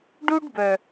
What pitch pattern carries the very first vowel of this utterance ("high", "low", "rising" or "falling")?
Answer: high